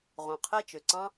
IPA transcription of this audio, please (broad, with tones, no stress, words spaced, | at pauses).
ʁõ˨ qʰe˦˨t͡ʃø˨ ǀɑ̃˦